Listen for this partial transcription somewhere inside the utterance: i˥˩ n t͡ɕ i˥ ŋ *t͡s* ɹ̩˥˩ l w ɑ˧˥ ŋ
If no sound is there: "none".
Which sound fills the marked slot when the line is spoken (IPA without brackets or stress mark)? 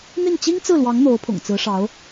t͡s